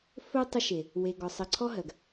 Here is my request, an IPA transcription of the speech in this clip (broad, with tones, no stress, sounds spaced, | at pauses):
f ɵ˦ tˤ ə˦ ʃ e˨ | w e˨ ɡ ɔ˨ sˤ ɜ˨ ǀʰ ɔ˦ ɦ ɜ˨ ɡ